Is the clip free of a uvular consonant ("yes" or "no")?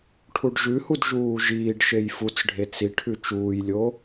yes